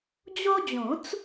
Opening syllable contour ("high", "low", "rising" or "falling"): high